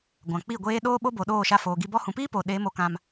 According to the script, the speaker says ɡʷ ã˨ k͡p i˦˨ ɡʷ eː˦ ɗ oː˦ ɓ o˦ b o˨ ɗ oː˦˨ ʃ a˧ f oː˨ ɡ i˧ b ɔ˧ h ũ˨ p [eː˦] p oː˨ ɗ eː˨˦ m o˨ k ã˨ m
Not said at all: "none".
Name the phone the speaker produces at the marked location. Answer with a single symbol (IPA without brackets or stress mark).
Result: iː˦